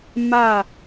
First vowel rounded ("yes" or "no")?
no